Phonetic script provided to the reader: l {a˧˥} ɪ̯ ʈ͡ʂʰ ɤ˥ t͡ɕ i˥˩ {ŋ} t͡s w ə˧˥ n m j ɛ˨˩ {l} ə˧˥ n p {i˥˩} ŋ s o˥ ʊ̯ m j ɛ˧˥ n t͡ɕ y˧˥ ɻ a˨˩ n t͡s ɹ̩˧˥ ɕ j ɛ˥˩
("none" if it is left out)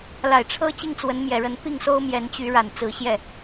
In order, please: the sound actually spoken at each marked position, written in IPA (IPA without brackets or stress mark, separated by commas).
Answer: a˨˩, ŋ, ɻ, i˥˩